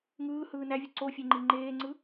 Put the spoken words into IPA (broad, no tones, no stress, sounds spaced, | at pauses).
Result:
ŋ ɯː h ɯː n æ vʲ ɯ ǀ o fʲ e ŋ͡ǃ i ŋ͡ǃ eː ŋ͡ǀ ɯ